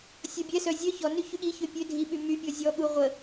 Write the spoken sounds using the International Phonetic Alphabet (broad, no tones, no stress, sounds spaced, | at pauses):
sʲ ɔ bʲ ɛ s œ zʲ œ ç ɔ n y ç y ɠ i ç ø pʲ ø dʱ i ɓ y m y pʲ ɔ zʲ ɔ ɠ u ʁʷ ə